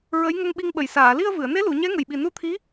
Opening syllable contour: rising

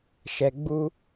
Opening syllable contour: low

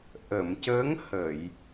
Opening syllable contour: low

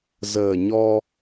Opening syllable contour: low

